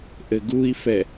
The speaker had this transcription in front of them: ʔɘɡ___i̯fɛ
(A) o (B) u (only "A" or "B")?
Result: B